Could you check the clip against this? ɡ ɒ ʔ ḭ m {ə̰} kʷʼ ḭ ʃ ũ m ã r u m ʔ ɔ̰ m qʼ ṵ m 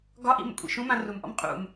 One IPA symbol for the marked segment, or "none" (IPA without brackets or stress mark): ə̰